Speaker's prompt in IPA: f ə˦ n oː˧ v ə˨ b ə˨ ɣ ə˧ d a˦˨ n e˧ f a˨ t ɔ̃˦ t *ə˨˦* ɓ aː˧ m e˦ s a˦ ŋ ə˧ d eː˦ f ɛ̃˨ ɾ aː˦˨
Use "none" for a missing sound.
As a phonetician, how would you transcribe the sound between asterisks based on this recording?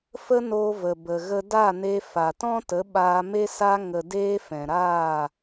ə˨˦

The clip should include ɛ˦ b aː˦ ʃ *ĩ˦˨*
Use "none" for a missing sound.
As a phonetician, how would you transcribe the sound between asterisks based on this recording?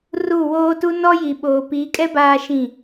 ĩ˦˨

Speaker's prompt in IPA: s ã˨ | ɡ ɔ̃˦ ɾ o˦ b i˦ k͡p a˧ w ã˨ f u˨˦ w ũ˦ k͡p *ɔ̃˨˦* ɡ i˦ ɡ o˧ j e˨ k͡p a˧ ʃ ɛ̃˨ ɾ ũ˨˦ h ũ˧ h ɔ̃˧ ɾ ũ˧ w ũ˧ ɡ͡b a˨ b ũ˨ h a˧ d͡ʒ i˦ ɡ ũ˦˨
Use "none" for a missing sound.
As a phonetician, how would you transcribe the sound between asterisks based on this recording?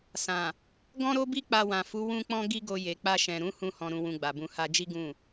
ɔ̃˦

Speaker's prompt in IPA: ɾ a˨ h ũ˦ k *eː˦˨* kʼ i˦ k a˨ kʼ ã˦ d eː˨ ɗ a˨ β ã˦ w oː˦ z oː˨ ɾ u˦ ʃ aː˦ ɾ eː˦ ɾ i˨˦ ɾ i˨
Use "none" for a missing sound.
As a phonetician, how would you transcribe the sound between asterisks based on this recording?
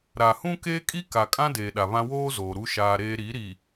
eː˦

